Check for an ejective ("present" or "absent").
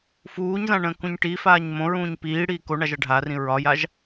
absent